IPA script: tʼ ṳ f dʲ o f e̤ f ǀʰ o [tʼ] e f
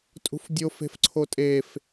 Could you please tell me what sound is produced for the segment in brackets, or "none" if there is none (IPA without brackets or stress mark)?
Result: tʼ